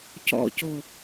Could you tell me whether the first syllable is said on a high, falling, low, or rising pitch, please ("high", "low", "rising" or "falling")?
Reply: low